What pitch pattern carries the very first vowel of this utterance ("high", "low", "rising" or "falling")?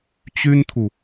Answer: high